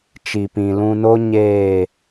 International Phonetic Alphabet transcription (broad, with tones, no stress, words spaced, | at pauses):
t͡ʃi˨pĩ˨lũ˧no˦ ɲeː˦˨